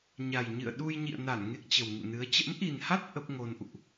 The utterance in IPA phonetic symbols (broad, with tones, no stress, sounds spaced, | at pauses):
ɲ a˨˩ j ɲ ɨ̰˧˨ ə̯ ɗ u˧ j ɲ ḭ˧˨ ə̯ n a˧˩ n ŋ e˦˥ k̚ t͡ɕ ə˨˩ w ŋ ṵ˧˨ n ɨ˨˦ ə̯ t͡ɕ ə̰˧˥ m ʔ i˨˩ n h a˦˥ t̚ ʔ ə˦˥ p̚ ŋ o˧ n ʔ ṵ˧˨ ʔ